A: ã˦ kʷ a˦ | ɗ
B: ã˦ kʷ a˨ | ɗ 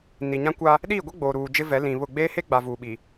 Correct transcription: A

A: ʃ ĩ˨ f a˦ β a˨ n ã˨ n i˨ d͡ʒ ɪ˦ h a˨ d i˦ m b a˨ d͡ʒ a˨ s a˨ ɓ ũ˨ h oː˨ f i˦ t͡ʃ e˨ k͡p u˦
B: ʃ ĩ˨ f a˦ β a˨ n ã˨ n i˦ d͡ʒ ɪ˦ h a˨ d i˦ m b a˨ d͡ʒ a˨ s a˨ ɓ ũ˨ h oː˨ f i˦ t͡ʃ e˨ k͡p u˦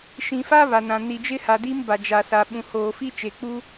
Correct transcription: A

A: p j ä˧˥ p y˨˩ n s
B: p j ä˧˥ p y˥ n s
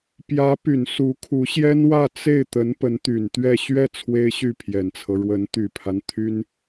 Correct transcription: A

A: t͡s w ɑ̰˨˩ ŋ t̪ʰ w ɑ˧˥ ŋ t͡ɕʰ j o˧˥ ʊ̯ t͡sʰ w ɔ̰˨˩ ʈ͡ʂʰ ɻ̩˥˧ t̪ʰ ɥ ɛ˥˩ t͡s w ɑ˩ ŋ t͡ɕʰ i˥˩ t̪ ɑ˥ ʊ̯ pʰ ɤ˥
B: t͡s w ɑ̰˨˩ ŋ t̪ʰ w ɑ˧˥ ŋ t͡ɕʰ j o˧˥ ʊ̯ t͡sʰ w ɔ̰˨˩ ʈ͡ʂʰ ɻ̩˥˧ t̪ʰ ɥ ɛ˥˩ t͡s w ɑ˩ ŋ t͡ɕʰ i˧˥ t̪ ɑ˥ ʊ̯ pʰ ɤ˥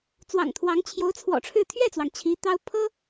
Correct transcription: B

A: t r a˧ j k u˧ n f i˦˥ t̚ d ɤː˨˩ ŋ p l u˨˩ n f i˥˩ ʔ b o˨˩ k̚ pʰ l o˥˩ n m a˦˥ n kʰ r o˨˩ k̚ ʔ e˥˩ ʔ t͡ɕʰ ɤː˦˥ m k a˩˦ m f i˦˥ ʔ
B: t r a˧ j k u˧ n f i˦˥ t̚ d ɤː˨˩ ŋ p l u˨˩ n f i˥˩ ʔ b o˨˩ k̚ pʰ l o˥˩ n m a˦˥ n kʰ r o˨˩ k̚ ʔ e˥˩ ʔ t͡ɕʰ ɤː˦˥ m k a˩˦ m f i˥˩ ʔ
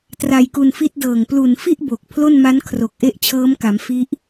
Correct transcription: A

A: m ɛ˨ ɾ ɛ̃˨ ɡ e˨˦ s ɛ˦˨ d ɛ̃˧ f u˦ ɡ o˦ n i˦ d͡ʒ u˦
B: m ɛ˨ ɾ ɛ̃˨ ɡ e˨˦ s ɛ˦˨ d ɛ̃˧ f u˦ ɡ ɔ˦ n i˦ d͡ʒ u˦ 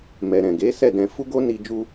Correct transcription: A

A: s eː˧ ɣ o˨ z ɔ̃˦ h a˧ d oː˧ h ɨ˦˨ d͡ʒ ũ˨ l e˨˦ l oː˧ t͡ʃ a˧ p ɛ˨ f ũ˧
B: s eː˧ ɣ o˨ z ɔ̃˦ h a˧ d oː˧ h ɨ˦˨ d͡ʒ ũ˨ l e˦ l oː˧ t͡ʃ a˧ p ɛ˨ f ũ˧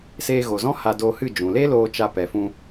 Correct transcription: B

